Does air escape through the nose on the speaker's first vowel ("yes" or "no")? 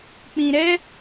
yes